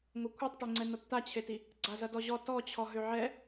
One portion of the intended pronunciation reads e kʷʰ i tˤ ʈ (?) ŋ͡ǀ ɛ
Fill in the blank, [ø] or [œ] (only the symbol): ø